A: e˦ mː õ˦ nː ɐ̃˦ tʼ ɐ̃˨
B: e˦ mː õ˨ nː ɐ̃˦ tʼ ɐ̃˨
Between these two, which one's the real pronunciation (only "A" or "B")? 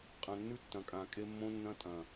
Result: A